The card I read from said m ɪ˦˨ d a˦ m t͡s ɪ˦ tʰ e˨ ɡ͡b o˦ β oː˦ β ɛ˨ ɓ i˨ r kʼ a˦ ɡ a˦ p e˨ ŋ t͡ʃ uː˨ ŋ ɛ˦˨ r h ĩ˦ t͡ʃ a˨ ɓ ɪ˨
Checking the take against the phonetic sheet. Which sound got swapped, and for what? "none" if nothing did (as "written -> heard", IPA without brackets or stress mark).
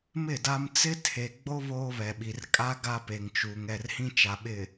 none